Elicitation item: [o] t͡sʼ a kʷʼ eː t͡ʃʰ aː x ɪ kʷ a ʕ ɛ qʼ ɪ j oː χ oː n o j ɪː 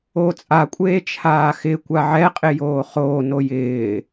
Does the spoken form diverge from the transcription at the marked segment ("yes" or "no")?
yes